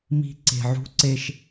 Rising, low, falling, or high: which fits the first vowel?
high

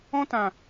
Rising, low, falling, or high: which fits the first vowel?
high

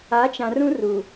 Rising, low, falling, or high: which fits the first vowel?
rising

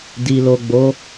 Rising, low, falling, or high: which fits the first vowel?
low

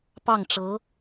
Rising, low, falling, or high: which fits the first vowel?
falling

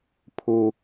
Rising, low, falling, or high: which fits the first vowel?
high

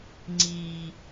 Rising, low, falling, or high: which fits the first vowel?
low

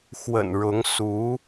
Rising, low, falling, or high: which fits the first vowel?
low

